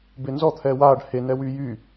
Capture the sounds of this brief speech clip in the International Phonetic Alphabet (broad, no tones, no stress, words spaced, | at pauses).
benzɔ t̪ʰɛːwaːɖ henɛwyː jy